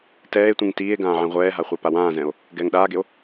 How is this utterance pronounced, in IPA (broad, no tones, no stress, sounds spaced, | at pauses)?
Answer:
t ɛː e̯ tʷ ĩ ŋ t iː e̯ ɡ ãː ʕ ẽ ʁʷ ɛː ɦ a χʷ œ p a w ãː z ɛ̃ o̯ | ɡ ɛː ŋ ɗ aː ɡ e o̯